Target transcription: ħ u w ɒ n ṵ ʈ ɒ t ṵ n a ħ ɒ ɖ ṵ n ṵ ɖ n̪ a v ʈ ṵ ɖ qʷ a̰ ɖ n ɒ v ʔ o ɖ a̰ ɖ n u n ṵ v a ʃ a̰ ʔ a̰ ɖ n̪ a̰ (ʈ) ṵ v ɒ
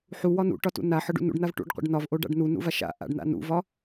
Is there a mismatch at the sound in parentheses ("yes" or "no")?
yes